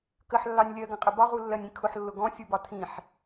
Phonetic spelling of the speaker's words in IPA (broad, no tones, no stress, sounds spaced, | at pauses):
k ə ħ lː ɑ nʲ lʲ ɜ ɡ ə̃ qʼ ə b ɒ ʁ u lː ɜ nʲ ĩ kʰ ʊ ħ lː ʊ ɡ ɔ̃ sʲ u b ɒ tʰ ĩ ħ